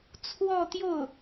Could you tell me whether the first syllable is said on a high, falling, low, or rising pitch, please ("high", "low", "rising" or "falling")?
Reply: falling